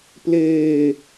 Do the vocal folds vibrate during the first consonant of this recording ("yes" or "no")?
no